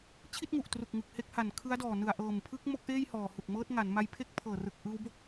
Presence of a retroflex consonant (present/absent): absent